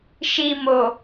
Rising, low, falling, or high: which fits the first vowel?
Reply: low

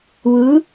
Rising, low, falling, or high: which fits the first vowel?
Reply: rising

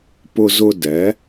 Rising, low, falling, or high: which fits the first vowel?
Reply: high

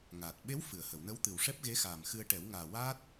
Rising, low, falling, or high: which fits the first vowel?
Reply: low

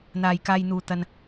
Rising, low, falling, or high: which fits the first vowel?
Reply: low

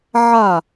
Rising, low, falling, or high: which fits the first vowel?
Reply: falling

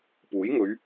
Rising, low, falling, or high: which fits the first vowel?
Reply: rising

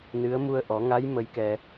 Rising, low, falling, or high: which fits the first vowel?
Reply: rising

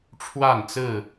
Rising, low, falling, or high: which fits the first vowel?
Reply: falling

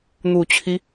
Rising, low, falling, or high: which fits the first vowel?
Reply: low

